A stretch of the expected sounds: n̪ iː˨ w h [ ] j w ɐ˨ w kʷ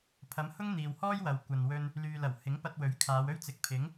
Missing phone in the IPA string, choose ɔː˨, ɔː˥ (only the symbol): ɔː˥